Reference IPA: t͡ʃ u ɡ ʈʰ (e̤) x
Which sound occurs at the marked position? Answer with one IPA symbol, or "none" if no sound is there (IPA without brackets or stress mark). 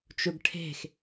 e̤